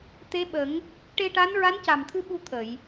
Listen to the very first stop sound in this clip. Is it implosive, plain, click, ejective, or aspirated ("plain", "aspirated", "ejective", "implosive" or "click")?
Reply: plain